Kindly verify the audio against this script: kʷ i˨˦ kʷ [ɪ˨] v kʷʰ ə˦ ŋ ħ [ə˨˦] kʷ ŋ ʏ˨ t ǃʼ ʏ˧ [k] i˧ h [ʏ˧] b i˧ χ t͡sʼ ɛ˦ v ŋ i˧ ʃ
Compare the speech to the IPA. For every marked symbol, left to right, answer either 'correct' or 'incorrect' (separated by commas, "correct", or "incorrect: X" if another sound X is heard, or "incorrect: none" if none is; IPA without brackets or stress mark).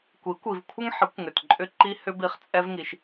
incorrect: i˨, correct, incorrect: ǃ, correct